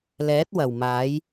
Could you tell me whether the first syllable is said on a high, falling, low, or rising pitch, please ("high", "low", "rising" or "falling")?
rising